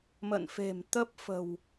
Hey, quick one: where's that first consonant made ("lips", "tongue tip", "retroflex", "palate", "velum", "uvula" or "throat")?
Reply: lips